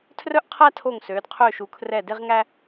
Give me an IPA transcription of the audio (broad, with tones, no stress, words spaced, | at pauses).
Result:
tʰrœ˥ʔqʰæ˥tʰo˦˨ŋsøː˨˦d qʰøː˦˨ʃu˨˦kʰrɛ˦˨ de˥ʁŋæ˥